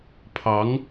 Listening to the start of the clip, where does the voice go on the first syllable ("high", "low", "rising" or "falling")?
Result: rising